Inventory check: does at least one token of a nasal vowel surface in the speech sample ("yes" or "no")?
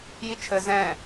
yes